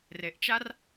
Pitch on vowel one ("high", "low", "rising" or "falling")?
low